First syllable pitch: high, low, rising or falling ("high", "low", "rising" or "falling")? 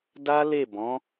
high